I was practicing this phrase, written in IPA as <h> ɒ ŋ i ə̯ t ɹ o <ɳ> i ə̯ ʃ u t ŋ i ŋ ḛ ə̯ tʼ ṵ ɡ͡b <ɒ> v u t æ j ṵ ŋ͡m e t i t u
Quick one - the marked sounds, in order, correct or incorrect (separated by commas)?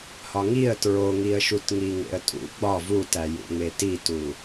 correct, incorrect, correct